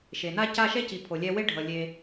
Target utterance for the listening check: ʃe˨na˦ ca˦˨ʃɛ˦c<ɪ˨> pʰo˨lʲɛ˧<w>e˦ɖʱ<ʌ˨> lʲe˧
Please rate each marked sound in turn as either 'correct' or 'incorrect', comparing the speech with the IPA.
incorrect, correct, correct

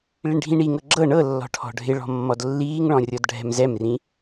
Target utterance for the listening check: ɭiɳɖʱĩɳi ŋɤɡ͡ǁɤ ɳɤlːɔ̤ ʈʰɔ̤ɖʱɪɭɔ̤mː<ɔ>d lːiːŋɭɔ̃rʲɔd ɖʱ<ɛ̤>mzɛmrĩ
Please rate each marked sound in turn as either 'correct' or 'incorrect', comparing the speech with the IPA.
correct, correct

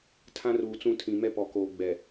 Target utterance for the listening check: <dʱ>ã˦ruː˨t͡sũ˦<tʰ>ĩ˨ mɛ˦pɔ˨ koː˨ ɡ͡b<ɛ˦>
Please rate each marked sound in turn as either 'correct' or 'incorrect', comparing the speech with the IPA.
incorrect, correct, incorrect

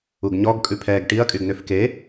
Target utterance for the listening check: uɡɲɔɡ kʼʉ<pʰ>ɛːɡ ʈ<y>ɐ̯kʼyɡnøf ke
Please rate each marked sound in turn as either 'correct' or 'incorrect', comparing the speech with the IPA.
correct, incorrect

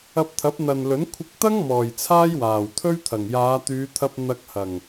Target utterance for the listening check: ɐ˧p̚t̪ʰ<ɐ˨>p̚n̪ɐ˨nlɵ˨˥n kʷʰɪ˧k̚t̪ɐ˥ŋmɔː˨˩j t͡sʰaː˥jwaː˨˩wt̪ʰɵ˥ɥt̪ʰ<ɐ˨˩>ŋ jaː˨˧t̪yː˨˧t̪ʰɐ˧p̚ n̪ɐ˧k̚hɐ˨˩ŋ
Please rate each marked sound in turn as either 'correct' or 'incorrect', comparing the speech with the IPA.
incorrect, correct

